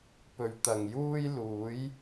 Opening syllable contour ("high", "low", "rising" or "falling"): low